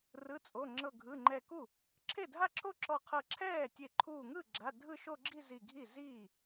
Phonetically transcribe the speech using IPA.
r ɯ˩˧˩ t͡sʼ o˩˧˩ ŋ͡ǁ ɤ˧˩ ɡʱ ɯ˩˧˩ ŋ͡ǃ ɛ˧˩ k u˥˩ | ǁʰ e˥˩ dʱ a˥˧ ǁʰ o˥˧ ǁ ɔ˧˩ qʰ ɤ˧˩ ǁʰ ɛː˥˩ tʲ e˧˩ ǃʰ uː˧˩ ŋ ɯ˥˩ ɡ͡ǁ a˩˧˩ dʱ ɯ˥˧ ʃ o˥˧ ɡ͡ǁ i˥˧ z i˧˩ ɡʱ i˥˩ z iː˥˩

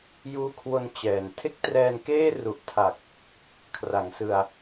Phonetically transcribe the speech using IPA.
j uː˦˥ kʰ w o˧ n t͡ɕ ɛː˨˩ n tʰ e˥˩ k̚ t r ɛː˧ n k eː˥˩ r u˨˩ ʔ tʰ a˨˩ k̚ | kʰ r a˩˦ ŋ s ɯ˧ a̯

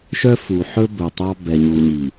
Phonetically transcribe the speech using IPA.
ʃ œ˦ f u˨ ħ ɵ˦ b ɵ˨ tˤ ɑ˦ b ɛ˨ ɲ u˨ ɲ i˨

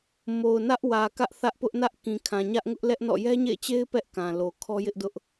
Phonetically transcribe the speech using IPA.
m o˨ ʊ̯ n ä˦ ʔ w ä˨ k ä˦ ʔ θ ä˦ ʔ p ʊ˦ ʔ n ä˦ ʔ k ĩ˨ kʰ ã˨ ɲ ä˦ ʔ ŋ ʊ˦ ʔ l ɛ˦ ʔ n ɔ̰˦˨ j ɛ˦ ɲ ḛ˦˨ ɪ̯ t͡ɕ e˦ ɪ̯ p ɛ˦ ʔ k ã˨ l o˨ kʰ ɔ˦ j ɪ˦ ʔ d ʊ˦ ʔ

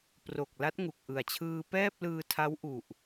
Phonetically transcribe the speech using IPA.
p r o˨˩ k̚ l a˦˥ t̚ ŋ u˨˩ k̚ ʔ ɯ˨˩ a̯ t͡ɕʰ ɯː˧ p ɛː˥˩ p̚ l ɯː˧ tʰ a˦˥ w ʔ u˨˩ ʔ

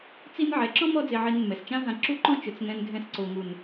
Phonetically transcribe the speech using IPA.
t͡s i˦ n ʕ ɛ˨˦ ǁ ɔ̃˦ m ɔ˦ d͡z e˧ ʕ i˧ n mː ɛ˨ s t͡ʃ ã˦ ɦ ã˧ ǁ u˦ ǃ ɔ̃˦ t͡ʃ ʊ˨ t͡s ŋ ɛ̃˧ n ɡʱ ɛ̃˧ s ǀ o˨ ŋ u˨ n

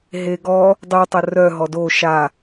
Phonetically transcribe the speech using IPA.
ɦ e ɡ ɔ | dˤ y tˤ ə r œ ɦ ɔ d o ʃ a

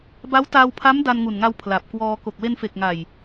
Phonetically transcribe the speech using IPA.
b a˦˥ w t aː˧ w pʰ a˦˥ m d a˧ n ŋ u˨˩ n ŋ a˧ w pʰ l a˨˩ p̚ k w ɔː˧ k o˨˩ k̚ w e˧ n f e˨˩ k̚ ŋ a˨˩ j

